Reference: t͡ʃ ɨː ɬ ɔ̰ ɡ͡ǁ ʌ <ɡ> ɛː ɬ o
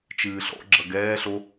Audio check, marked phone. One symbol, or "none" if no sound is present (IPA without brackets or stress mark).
ɡ